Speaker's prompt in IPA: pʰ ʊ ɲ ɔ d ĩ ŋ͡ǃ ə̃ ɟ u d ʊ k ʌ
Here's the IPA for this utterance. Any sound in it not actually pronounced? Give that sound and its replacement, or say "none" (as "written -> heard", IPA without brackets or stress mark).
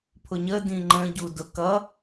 ɔ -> ə